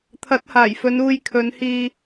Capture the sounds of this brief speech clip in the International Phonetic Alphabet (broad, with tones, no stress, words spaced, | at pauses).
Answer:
t̪ʰɐ˨˥t̚haː˨˩jfɵ˨˧n uː˧jkʰɵ˨˧nhiː˧